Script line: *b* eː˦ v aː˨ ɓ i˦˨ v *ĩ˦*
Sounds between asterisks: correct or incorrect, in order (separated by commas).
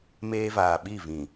incorrect, incorrect